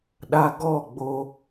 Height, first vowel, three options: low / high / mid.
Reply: low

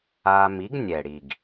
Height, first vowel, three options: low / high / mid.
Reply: low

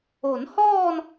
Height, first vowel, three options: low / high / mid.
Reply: mid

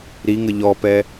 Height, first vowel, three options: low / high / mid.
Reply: high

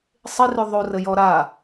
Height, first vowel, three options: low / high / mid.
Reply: high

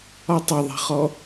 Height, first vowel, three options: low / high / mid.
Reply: low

